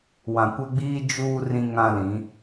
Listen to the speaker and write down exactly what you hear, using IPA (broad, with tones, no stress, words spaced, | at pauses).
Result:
wã˨kʷɛ˦ɡ͡biː˦ d͡ʒuː˦ rĩ˦ŋã˦lĩ˨˦